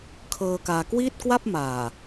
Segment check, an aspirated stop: present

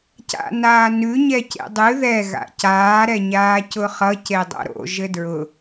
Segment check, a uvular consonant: present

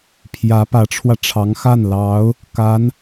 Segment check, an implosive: absent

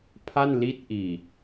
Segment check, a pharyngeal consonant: absent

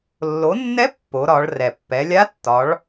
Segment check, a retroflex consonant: present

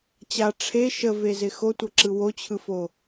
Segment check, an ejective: absent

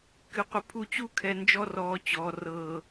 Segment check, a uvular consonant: present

